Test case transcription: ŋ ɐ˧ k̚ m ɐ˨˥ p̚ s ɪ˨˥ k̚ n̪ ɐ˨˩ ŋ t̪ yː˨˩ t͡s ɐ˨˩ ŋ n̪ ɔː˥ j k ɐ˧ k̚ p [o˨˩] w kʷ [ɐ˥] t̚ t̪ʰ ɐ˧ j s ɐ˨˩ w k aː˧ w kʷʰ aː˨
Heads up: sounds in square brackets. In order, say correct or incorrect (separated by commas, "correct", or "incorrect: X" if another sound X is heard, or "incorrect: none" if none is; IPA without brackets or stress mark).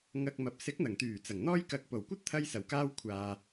correct, correct